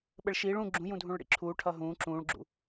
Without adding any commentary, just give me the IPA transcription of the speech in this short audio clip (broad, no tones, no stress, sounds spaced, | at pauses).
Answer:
ɓ ə ɭ ʃ iː ɭ ũ ɡ͡ǁ ũ j ũ dʱ ũː ɭ ɽ ḭ ǁʰ uː ʈʰ ʌː ɦ ũː ǁ ũː ɭ ɡ͡ǁ ṵ